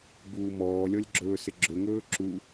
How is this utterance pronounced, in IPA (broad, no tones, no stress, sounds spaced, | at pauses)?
b uː m ɔː lʲ ɔ lʲ ɡ͡ǁ ɵː s ɪ ɡ͡ǁ ɵ ŋ ɵː ǁ u